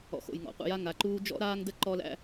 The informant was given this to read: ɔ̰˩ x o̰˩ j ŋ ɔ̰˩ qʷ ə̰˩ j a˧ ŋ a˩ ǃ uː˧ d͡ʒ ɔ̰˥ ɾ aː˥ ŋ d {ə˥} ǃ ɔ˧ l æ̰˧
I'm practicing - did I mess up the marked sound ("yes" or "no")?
no